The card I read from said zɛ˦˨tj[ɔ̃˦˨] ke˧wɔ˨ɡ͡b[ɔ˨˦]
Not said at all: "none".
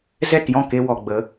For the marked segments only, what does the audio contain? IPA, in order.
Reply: ɔ̃˦˨, ə˨˦

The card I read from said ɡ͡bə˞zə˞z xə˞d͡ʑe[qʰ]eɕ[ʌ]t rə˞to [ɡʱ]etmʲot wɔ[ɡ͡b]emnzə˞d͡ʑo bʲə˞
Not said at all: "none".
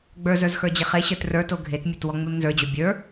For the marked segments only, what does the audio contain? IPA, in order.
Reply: χ, ə˞, ɡʱ, ŋ͡m

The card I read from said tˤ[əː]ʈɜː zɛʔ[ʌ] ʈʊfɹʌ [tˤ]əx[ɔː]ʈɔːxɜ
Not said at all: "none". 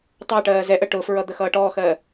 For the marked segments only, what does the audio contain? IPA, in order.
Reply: əː, ə, d̪, ʌː

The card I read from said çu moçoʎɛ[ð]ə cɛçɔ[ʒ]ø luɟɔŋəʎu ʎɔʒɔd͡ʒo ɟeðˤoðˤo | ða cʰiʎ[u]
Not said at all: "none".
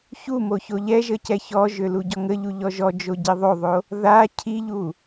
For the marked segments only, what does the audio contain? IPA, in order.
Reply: ʒ, ʒ, u

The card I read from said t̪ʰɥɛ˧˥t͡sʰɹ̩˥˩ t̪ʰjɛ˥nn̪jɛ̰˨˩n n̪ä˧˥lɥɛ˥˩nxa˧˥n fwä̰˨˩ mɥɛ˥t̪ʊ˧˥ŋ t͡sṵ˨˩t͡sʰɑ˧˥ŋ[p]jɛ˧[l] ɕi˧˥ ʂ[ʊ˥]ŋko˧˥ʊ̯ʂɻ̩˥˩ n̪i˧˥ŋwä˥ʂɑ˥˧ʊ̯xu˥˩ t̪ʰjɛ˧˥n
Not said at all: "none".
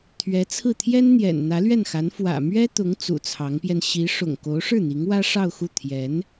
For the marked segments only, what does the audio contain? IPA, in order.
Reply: p, n, ʊ̰˨˩

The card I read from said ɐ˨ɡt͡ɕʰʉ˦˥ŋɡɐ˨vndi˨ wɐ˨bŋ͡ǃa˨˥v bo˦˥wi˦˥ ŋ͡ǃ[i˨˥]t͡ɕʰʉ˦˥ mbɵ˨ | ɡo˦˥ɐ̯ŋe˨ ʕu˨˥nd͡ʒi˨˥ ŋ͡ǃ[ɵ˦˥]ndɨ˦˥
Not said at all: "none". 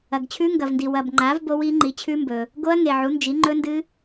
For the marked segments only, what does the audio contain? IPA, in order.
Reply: i˨˥, ɵ˦˥

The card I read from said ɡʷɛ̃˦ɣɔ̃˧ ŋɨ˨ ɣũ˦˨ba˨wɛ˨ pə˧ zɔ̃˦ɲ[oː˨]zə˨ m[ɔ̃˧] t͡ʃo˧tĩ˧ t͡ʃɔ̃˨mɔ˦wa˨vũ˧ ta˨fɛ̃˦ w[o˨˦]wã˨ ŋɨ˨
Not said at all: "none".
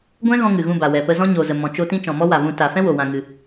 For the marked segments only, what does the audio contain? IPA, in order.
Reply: o˨, ɔ̃˨, o˨

